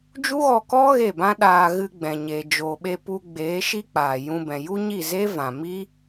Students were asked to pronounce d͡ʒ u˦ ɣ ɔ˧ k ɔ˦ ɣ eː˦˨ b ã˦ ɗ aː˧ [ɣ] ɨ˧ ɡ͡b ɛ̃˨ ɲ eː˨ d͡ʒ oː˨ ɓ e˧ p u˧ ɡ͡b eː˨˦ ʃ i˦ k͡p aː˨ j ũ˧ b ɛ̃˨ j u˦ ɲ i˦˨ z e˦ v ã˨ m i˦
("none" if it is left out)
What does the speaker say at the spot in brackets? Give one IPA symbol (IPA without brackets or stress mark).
ɣ